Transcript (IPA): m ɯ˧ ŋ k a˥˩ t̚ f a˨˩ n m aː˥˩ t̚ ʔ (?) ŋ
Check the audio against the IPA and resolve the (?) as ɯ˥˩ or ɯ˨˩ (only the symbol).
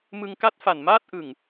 ɯ˨˩